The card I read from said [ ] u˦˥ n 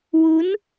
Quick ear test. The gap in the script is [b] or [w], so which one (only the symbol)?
w